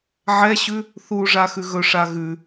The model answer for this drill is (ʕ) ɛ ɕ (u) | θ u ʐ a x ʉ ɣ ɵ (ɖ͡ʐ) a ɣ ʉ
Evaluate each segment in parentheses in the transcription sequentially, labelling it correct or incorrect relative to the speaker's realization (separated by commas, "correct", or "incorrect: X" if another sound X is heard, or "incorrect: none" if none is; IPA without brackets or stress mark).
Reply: correct, incorrect: ʉ, incorrect: ʂ